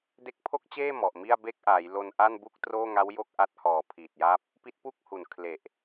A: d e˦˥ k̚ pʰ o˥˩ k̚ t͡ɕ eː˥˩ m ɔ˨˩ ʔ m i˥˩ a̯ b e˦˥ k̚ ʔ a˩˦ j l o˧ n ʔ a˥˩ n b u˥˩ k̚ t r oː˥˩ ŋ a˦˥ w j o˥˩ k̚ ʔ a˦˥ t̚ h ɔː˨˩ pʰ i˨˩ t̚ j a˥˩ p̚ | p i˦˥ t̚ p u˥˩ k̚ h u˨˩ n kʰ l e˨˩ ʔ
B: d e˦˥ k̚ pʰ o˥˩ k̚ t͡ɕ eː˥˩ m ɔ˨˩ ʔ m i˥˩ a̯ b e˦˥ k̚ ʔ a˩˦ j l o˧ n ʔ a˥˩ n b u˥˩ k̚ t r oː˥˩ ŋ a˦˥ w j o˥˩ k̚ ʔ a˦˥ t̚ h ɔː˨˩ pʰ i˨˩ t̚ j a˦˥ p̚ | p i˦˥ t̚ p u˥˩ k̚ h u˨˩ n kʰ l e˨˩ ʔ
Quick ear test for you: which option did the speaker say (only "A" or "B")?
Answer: B